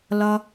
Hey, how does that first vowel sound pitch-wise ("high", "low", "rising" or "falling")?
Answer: high